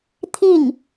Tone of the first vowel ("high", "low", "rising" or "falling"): falling